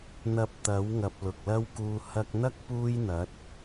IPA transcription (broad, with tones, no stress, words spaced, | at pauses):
n̪ɐ˧p̚t̪ɐ˨˥wŋɐ˨p̚ lʊ˨k̚lɐ˥wkuː˧ hɐ˧k̚ n̪ɐ˥k̚ puː˥jn̪ɐ˨˥t̚